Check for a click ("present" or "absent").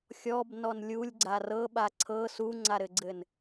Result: present